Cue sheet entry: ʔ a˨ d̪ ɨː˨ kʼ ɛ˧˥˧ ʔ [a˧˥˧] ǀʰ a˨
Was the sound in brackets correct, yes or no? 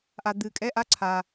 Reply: yes